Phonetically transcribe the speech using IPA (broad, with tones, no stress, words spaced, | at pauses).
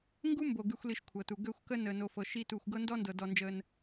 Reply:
ŋɡu˦mbo˨ ɡy˨xʷli˨ʃ kʷʰɤ˨tu˨ ɡø˦˨xʷkə˦ nəː˨no˨fɤ˨ ʃi˦ tuː˨xʷɡɤ˦ ndɔ˦ndɤ˨ dɔ˦nd͡ʒəː˦n